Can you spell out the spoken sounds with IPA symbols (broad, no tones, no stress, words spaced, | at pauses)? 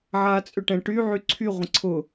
ʕaːt͡sʼʏʈɛ̃ʈy ʕyǀʰy ʁʷə̃ǀʰʊ